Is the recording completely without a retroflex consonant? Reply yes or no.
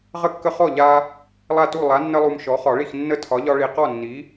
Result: no